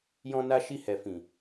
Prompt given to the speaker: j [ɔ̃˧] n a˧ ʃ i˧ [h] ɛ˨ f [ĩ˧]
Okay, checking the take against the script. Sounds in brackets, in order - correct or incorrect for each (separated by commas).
correct, correct, incorrect